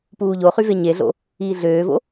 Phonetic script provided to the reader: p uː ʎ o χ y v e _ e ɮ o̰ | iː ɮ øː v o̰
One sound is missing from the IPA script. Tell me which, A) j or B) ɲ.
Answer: B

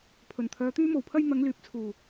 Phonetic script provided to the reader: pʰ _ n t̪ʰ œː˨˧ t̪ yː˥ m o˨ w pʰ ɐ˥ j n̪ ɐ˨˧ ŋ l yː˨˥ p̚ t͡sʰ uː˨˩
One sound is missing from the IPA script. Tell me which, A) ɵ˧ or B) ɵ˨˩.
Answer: B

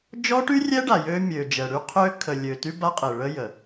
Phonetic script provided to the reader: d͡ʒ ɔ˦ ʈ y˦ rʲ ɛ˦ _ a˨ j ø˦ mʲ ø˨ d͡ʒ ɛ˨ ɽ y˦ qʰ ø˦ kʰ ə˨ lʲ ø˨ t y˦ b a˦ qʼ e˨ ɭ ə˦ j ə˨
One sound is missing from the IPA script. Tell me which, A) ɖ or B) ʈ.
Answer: A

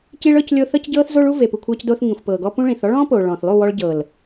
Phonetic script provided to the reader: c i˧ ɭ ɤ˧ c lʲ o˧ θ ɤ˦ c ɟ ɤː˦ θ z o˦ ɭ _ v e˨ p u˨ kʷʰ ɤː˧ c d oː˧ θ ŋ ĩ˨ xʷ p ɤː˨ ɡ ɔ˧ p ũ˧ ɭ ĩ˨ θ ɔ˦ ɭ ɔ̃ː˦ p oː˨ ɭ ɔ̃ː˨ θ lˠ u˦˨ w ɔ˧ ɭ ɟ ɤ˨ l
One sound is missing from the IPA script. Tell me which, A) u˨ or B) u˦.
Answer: B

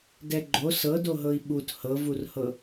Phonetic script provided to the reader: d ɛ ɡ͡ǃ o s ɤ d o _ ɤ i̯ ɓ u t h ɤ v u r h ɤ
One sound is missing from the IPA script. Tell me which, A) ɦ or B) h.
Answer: A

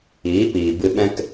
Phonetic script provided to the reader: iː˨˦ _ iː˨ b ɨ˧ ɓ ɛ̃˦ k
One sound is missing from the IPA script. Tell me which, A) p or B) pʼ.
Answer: A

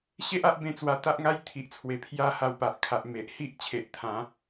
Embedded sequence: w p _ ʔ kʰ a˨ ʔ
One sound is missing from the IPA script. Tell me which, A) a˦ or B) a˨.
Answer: B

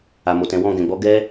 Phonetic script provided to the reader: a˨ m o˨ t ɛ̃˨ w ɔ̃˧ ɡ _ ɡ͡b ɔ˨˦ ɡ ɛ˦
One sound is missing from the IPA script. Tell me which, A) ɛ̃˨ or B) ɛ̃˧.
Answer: A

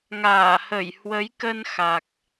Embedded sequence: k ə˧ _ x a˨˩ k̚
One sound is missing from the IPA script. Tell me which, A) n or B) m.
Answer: A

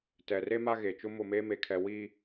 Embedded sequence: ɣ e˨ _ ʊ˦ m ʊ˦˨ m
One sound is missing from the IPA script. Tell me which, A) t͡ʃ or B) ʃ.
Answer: A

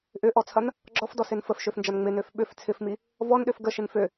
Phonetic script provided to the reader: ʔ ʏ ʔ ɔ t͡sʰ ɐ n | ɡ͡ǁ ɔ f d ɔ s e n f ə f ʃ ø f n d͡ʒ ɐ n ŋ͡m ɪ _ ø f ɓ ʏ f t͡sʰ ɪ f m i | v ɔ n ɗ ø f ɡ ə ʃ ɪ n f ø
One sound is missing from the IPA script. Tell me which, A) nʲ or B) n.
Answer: B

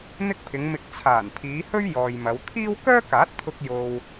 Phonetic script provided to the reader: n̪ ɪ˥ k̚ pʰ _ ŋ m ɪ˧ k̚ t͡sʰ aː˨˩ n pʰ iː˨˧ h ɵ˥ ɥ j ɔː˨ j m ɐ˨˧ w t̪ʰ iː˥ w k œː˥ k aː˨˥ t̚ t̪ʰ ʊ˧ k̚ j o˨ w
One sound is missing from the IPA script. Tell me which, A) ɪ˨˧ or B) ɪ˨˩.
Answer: A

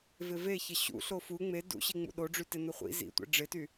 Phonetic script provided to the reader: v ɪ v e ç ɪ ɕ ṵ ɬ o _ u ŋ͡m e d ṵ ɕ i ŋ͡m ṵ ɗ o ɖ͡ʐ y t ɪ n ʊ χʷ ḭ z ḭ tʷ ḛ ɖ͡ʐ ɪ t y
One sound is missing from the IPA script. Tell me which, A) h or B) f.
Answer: B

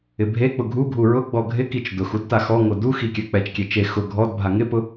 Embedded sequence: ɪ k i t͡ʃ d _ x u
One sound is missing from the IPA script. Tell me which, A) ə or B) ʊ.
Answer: B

